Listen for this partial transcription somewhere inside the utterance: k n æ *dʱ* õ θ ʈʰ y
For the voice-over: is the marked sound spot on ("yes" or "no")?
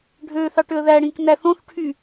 no